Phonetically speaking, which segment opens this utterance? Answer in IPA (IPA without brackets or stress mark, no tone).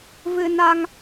v